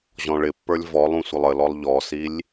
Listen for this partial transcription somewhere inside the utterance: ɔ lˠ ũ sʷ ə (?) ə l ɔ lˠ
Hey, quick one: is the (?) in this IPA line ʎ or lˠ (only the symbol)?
lˠ